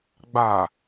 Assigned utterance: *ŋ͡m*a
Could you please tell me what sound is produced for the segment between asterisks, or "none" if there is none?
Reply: ɡ͡b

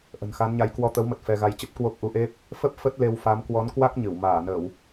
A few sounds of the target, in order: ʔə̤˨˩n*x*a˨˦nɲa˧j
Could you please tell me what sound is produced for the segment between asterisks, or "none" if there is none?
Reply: x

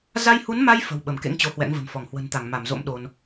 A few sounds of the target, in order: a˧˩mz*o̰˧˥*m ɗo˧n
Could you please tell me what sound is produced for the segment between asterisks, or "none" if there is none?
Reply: o̰˧˥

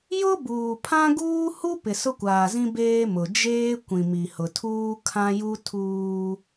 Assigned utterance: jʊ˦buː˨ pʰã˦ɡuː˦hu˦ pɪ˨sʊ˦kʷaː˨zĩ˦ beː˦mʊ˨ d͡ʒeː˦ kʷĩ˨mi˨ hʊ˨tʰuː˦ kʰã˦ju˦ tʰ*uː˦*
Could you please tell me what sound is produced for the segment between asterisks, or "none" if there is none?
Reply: uː˦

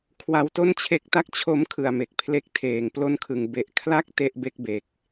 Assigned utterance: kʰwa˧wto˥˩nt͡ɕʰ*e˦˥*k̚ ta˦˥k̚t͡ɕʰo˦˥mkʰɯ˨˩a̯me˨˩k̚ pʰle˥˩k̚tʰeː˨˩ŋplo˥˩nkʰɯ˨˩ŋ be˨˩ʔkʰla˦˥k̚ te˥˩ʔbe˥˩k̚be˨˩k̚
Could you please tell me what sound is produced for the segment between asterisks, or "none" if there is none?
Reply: e˦˥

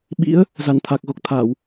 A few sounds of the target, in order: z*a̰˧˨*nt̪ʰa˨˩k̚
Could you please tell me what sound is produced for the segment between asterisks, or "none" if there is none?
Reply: a˧˩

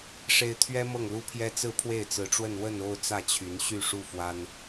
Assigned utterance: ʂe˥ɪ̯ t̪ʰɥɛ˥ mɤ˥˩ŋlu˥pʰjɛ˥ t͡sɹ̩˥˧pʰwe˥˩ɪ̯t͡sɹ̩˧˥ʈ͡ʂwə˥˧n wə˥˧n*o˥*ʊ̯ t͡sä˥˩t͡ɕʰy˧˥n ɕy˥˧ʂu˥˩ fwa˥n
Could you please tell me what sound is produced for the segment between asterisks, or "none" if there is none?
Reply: o˥˧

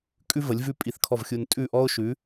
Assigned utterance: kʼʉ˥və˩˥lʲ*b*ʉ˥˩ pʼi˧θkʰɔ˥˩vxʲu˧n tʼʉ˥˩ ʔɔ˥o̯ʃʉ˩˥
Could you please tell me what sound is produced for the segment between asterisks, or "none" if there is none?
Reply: v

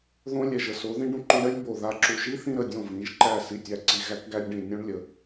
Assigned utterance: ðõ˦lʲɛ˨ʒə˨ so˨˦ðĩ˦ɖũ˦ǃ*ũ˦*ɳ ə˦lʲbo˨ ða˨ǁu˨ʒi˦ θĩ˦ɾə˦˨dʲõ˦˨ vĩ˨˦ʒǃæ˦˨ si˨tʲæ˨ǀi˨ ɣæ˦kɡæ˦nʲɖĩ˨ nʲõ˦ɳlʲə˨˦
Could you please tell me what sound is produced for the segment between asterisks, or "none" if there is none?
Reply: õ˦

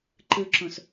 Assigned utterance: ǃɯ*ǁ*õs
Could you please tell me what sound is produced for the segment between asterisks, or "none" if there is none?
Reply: ǁ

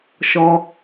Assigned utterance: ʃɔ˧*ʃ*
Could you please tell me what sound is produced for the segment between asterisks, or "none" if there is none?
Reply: none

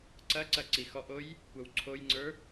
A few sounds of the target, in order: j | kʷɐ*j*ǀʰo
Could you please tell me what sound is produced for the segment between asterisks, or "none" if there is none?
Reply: w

